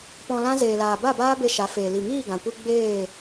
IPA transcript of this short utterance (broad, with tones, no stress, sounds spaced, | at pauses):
p ɔ̃˧ l ã˦ z eː˨ l aː˨ b a˦˨ b aː˦ b e˧ ʃ a˨˦ f eː˨ l i˨ ŋ iː˦˨ ɡ ã˨ kʷ ɨ˧ ɡ͡b eː˦˨